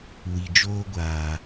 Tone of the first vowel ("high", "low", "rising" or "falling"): low